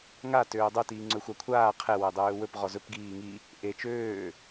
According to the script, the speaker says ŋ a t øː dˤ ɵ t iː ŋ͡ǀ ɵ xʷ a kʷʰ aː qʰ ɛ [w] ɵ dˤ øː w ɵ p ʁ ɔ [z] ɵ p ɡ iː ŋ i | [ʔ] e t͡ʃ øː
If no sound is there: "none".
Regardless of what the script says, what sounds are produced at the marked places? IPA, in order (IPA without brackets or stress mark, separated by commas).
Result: w, z, ʔ